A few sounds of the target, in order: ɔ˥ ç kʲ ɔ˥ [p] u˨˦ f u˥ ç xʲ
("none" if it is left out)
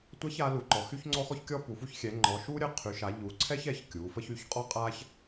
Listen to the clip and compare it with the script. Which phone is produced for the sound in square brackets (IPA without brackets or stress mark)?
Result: p